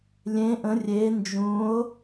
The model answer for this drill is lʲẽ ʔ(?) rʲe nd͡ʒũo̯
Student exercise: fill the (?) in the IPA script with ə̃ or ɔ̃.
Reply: ə̃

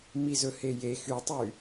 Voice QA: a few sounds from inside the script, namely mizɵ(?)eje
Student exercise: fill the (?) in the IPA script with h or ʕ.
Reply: h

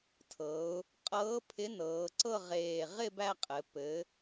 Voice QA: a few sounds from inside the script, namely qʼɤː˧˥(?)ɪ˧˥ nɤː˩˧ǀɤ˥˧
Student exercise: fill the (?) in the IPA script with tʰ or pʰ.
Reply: pʰ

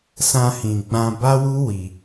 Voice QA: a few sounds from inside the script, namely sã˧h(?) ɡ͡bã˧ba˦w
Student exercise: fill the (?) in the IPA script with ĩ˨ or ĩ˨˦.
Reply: ĩ˨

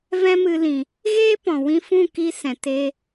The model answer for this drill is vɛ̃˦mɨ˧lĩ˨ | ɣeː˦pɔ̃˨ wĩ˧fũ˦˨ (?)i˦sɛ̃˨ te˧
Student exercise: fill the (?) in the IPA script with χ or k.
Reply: k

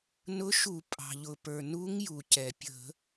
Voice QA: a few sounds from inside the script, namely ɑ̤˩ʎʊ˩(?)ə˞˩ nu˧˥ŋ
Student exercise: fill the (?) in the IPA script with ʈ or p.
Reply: p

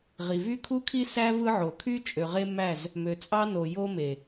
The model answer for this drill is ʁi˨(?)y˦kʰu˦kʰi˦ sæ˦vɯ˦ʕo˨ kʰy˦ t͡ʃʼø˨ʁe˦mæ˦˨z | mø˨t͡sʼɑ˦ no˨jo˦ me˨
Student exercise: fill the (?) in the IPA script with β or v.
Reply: v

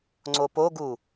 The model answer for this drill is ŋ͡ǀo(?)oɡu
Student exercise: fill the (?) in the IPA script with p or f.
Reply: p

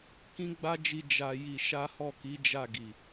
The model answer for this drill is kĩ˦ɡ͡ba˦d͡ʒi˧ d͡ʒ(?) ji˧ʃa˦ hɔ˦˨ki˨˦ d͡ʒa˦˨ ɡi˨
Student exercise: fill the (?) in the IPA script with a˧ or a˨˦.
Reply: a˧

